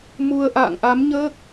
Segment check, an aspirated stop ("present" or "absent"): absent